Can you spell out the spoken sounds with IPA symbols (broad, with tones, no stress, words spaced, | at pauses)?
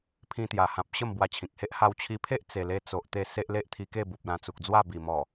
pʰĩ˧t̪ja˨˩hã˨p̚ ɕə˥˧mbwa˧t͡ɕʰĩ˨k̚he˦ʔ ha˧wt͡ɕʰi˧pʰe˦ʔ t͡se˨˩le˧t͡so˨ʔt̪e˧ se˦ʔle˦ʔt̪ʰi˧ke˥˧ bu˨p̚lã˧t͡su˨k̚d͡zwa˥˧ bi˨˩mɔ˨˩